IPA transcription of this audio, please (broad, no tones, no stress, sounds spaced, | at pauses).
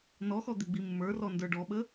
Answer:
n ɔ x ɔ d̪ ɪ ɡ͡b i mː ə˞ r ɔ n d ə˞ ɖ ɔ ɓ ə